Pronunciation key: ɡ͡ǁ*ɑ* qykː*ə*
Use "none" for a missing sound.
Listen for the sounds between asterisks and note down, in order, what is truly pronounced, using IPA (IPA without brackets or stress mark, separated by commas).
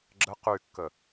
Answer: ə, ə